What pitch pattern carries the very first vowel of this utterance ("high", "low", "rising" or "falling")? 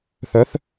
rising